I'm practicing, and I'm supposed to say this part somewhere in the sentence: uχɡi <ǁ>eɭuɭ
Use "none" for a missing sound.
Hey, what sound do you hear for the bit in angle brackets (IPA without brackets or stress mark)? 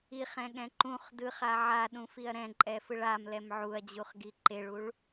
ǃ